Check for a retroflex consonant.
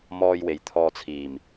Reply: absent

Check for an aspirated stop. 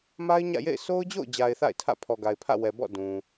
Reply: present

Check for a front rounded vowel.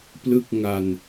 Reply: absent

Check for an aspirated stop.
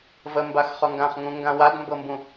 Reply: absent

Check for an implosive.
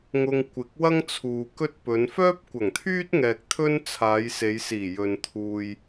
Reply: absent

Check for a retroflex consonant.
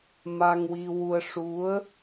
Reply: present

